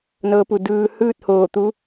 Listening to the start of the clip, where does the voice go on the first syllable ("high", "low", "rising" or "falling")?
rising